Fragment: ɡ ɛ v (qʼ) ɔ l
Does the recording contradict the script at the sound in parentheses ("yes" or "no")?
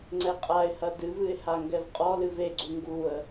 no